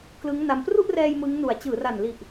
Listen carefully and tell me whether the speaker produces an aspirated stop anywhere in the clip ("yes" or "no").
no